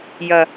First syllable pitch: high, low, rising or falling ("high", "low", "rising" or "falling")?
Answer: low